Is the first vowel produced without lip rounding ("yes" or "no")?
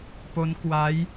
no